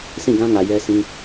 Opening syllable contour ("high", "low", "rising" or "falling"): falling